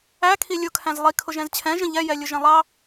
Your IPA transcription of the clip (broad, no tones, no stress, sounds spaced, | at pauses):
æ kʰ i lʲ ʊ kʰ æ̃ z lˠ i kʰ ʊ ʒ ɛ̃ z t͡ɕʰ ɛ̃ ʒ ə̃ ʎ ɛ j ɛ lʲ ʊ ʒ ɛ̃ lˠ ɑ